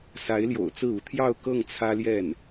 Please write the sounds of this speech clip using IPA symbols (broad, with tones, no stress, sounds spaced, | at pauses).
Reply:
s a˧˥ ɪ̯ l j o̰˨˩ ʊ̯ t͡s ɹ̩˥˩ u˧˥ t̪ʰ j ɑ˥˧ ʊ̯ k ɤ˥˩ ŋ t͡sʰ ä˥ l j ɛ˥˩ n